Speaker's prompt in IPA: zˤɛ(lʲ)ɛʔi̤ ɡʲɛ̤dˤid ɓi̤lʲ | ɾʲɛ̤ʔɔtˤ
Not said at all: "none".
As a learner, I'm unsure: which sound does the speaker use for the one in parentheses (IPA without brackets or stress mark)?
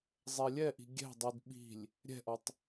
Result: lʲ